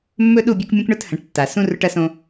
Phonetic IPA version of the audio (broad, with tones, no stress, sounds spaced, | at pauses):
mː ɵ˦ ɗ u˦˨ bʲ o˦ k mʲ ũ˦ k ɳ ɵ˦ t h ɐ̃˨ ʈ tː a˨ s ũ˦ r ɵ˦ ʈ ɐ˦ s õ˦